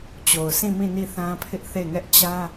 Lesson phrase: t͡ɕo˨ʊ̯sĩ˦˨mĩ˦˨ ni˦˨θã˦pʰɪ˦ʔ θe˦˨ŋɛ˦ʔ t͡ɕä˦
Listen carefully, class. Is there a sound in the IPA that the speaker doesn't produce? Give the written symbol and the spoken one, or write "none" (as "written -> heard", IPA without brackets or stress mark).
none